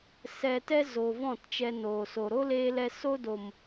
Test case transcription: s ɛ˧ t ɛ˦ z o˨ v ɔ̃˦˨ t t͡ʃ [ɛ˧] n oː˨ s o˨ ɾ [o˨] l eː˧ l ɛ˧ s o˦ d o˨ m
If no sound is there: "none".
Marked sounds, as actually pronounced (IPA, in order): ɛ˧, o˦

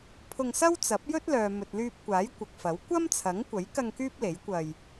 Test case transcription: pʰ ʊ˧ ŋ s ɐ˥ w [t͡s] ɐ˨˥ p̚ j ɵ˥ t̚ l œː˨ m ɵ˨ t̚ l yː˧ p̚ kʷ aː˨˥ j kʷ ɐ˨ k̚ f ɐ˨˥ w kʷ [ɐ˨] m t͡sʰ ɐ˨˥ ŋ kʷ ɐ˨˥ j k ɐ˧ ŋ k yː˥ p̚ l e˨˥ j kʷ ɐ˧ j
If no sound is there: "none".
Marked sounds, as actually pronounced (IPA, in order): t͡s, ɐ˥

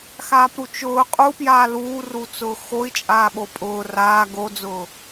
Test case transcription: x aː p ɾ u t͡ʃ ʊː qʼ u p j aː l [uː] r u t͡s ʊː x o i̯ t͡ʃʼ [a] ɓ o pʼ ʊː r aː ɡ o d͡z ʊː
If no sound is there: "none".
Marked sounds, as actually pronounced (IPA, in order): uː, aː

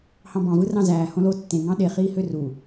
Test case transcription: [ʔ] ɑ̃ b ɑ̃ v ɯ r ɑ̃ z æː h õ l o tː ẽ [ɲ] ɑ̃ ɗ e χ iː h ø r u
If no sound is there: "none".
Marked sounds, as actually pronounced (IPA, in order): h, ŋ

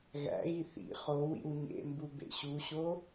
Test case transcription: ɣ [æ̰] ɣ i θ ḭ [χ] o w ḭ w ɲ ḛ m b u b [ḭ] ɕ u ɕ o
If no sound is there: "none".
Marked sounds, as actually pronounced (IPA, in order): æ̰, χ, ḛ

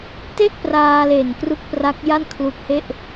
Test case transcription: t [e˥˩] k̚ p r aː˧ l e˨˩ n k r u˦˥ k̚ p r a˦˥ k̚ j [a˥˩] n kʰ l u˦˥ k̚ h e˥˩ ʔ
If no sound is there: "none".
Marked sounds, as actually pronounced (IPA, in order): e˥˩, a˥˩

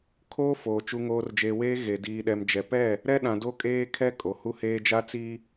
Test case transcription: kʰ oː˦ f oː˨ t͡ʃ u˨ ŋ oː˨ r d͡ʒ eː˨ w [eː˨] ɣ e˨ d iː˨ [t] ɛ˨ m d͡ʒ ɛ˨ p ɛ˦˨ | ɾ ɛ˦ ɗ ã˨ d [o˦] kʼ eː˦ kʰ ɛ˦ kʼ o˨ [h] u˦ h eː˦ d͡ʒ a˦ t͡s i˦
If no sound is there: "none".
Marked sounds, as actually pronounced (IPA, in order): eː˦, ɗ, o˦, h

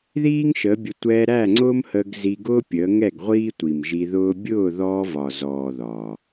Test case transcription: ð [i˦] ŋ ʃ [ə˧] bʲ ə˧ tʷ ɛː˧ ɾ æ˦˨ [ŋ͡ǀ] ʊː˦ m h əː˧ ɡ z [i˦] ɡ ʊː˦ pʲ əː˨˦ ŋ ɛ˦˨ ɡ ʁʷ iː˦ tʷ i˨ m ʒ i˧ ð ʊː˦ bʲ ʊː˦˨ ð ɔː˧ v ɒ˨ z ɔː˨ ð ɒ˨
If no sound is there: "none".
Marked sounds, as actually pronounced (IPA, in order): iː˦, ə˨˦, ŋ͡ǀ, i˧

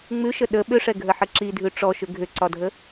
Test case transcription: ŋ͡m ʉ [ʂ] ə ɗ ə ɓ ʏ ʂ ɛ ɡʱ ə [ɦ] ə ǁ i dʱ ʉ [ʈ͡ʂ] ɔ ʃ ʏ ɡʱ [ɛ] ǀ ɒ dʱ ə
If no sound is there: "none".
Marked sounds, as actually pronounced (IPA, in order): ʃ, ħ, ʈ͡ʂ, ʏ

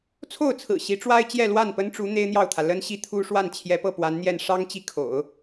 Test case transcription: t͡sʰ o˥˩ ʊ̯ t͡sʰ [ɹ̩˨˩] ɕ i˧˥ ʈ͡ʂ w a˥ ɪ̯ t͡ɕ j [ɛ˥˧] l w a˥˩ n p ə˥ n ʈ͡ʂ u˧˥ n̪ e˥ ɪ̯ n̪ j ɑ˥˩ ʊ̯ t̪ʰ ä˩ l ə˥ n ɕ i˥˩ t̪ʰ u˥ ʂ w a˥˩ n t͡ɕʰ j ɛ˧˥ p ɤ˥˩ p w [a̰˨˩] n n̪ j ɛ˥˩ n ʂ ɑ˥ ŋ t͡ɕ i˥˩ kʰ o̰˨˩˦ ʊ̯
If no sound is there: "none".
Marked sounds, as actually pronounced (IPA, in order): ɹ̩˨˩, ɛ˥˧, a˧˥

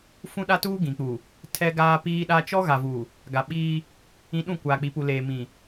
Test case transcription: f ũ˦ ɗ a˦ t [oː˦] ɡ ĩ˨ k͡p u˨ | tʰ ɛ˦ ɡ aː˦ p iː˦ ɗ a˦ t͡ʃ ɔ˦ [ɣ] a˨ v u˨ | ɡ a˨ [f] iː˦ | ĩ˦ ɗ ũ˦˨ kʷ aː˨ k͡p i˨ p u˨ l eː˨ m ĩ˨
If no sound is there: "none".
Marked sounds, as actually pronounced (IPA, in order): uː˦, ɣ, ɓ

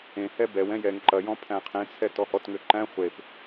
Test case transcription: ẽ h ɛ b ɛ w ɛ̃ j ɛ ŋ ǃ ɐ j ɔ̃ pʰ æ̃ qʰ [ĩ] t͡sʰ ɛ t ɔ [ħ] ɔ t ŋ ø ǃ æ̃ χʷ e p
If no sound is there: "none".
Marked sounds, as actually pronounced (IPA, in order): ẽ, h

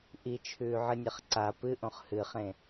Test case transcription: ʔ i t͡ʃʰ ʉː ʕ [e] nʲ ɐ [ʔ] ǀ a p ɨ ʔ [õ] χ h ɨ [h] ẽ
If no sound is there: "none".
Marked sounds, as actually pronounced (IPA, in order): ɨ, χ, õ, χ

